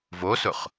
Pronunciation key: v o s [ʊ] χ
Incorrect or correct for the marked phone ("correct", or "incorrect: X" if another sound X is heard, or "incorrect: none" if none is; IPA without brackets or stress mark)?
correct